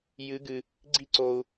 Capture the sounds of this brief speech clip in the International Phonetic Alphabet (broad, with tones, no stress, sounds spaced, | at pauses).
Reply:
j ɨ˧˥ ɡ ɨ˧ | ɡ͡ǀ i˥ ǀ o˧ u̯